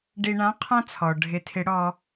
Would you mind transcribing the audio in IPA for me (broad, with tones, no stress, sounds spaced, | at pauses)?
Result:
ɖ i˧ ɳ ã˧˥ qʰ ã˥ t͡sʰ ɔ˩ ɖʱ ɪ˧ tʰ ɪ˧˥ ɽ ɔ˧